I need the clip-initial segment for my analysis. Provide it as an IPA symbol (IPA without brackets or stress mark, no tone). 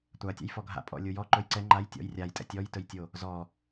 tʷ